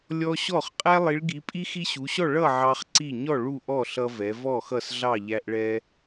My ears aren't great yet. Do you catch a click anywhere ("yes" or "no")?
yes